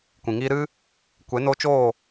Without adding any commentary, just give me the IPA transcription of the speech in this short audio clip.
kʷ ĩ˨ ŋ iː˧ ɾ ɨ˦ | kʷ e˨˦ n o˧ t͡ʃ oː˦˨

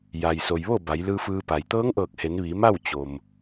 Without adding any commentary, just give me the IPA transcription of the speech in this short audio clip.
j a˩ j s o˩ j ʋ o˥˨ b a˩˧ j l ɯː˧ f ɯː˧ p a˩ j t̪ ɤː˧˥ ŋ ʔ ɤː˧˩ k̚ h e˩˧ n ʋ iː˩˧ m a˥˨ w t͡ɕ o˩ m

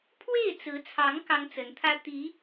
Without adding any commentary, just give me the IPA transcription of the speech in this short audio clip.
pʰ w e˥˩ ɪ̯ t͡s ɹ̩˧˥ t͡sʰ ɑ˧˥ ŋ k ɑ˥ ŋ t͡s ə˧˥ n t̪ʰ ä˥ t̪ i˧˥

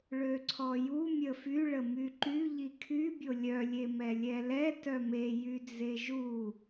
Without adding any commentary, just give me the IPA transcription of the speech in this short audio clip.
ɭ ø ǀʰ ɔ j u mʲ ə f y ɭ ə m y ǃ y ʎ i kʰ y bʲ o lʲ œ lʲ e m ɛ lʲ ɛ l ɛ t œ m e j y d͡z e ʒ u

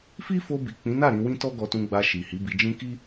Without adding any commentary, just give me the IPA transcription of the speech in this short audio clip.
f i˦ f o˧ b i˨ k͡p ĩ˨˦ n a˦˨ ɾ ĩ˧ w ĩ˦ t ɔ˦ ɡ ɔ˧ t ũ˧ ɡ͡b a˧ ʃ i˨ h i˨˦ b i˧ d͡ʒ ĩ˦ k i˦

